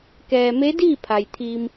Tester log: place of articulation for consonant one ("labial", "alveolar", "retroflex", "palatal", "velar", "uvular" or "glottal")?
velar